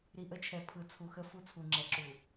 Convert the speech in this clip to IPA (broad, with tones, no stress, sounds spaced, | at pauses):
ɾ i˨ ʔ ə˦ t͡ʃʰ ɛ˨ pʰ ɯ˨ t͡sʰ u˨ x ə˦ f u˦ t͡sʰ u˨ ŋ͡ǁ ɛ˨ ǁ u˨